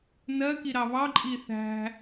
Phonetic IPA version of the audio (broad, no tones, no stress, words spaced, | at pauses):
nɜki ɾɑβɑǃʼi θæ̤